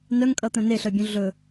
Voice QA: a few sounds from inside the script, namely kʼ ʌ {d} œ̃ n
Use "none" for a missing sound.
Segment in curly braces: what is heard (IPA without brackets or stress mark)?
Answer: t̪